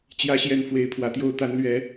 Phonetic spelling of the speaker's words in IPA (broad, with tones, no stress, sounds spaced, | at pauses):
t͡ɕ j ä˨˦ ɕ j ɛ˨˩ n f w e˨˦ ɪ̯ pʰ w ä˨˩ t̪ j o˦ ʊ̯ t̪ a˨˦ n l ɥ ɛ˨˦